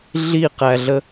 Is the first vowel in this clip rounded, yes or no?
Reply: no